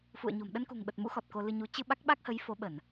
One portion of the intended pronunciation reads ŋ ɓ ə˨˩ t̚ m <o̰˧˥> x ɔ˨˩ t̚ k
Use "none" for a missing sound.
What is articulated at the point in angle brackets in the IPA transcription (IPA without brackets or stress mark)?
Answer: ṵ˧˥